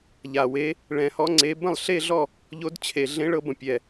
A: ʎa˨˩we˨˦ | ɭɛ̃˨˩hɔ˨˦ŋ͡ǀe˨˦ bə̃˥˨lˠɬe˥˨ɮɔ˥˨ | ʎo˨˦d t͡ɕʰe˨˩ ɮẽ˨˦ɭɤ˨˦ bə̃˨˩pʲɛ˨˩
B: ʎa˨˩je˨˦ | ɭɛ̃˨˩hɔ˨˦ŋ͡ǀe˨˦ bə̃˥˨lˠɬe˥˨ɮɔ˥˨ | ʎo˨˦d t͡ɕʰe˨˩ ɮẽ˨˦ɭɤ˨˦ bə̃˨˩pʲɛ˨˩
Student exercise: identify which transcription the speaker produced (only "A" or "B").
A